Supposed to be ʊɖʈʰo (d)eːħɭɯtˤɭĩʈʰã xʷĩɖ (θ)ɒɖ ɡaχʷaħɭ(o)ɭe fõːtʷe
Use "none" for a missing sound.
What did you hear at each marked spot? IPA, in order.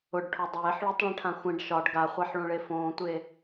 dˤ, ʃ, õ

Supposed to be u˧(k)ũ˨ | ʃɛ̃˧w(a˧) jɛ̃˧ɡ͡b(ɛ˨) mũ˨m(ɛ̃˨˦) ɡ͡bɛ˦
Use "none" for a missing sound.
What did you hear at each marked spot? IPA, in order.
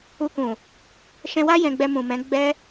k, a˦, ɛ˧, ɛ̃˨˦

